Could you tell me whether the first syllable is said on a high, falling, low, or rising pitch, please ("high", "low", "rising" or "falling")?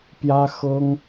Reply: high